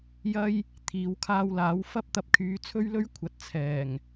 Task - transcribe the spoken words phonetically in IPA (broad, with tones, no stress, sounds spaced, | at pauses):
j ɐ˥ j | t̪ʰ iː˨˧ w kʰ aː˧ w l aː˨˥ w f ɐ˥ p̚ t̪ ɐ˧ p̚ kʰ yː˨˧ t͡sʰ ɵ˥ ɥ l ɵ˥ ɥ kʷʰ ɐ˨˥ t̚ t͡sʰ ɛː˨˩ ŋ